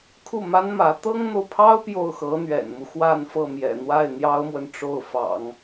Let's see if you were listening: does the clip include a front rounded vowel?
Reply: no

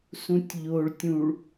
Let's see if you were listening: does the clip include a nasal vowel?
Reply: yes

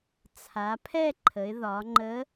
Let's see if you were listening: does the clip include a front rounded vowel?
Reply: no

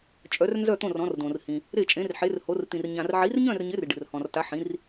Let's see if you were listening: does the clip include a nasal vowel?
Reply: yes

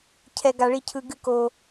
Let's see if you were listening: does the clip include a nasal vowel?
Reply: no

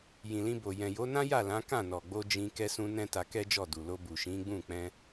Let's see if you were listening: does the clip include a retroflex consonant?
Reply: no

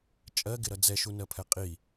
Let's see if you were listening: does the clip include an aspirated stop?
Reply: yes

